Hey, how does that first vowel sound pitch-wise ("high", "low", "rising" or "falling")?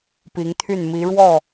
rising